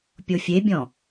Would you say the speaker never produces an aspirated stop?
yes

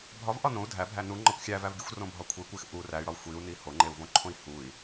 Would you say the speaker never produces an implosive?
yes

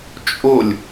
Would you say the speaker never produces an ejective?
no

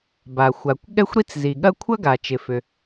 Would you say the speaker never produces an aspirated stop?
no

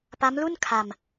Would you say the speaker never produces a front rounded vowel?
yes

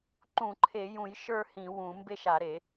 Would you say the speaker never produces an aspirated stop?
no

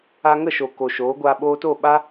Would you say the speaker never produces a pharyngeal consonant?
yes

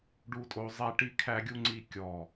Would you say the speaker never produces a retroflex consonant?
no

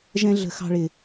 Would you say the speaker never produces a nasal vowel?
no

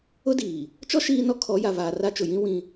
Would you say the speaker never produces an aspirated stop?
no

